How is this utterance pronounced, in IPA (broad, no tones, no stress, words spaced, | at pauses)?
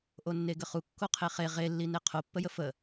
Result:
ʔonːeɡəχu kːoqʰeχe ʁelːine qʰopːəjə fə